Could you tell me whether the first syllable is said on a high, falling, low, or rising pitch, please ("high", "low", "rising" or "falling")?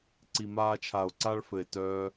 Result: low